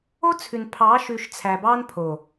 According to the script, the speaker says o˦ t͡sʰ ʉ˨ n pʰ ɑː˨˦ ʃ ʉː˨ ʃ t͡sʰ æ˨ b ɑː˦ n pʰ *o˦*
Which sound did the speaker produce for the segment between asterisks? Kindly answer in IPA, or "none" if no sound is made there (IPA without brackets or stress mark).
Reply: o˨